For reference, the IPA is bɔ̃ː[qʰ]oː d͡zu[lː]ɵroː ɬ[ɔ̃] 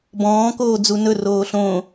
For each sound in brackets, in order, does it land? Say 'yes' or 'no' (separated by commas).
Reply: no, no, no